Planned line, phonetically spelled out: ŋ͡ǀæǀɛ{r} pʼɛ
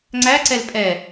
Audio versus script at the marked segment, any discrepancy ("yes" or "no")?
yes